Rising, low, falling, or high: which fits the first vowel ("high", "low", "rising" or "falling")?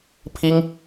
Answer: high